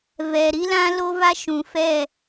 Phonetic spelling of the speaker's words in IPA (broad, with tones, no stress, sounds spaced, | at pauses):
v ɛ˨ ɾ i˦ l ã˦ l o˦ v a˦ ʃ ũ˨ f ɛ˦˨